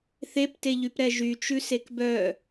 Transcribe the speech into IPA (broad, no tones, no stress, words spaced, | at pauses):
θepteʎypɾɛ ʒyt͡ʃʉ sekbœ